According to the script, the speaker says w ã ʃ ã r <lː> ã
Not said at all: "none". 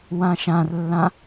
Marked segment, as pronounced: lː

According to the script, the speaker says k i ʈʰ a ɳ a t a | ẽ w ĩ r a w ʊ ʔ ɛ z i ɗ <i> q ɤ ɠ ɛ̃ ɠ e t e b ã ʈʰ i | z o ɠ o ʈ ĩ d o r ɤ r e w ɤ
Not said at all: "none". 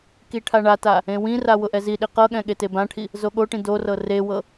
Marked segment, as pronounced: i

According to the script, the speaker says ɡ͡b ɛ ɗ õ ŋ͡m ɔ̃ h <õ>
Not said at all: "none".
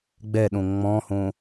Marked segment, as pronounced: õ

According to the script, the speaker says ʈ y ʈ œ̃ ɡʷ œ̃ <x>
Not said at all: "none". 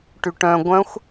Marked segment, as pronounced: xʷ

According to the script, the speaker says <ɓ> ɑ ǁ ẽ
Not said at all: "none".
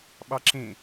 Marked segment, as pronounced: ɓ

